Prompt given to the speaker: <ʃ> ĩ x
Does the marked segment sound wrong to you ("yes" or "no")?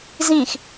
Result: yes